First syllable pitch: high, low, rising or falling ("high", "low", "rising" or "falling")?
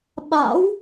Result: rising